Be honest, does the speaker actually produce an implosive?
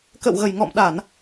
yes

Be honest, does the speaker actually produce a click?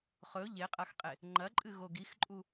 yes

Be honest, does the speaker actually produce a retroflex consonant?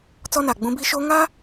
no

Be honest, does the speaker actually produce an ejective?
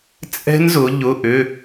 yes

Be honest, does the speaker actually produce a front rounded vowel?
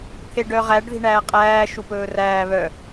yes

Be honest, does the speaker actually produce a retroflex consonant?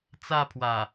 no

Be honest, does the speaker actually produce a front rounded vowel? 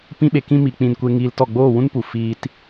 no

